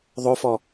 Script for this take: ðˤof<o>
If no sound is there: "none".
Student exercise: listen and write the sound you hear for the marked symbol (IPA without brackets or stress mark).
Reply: ɔ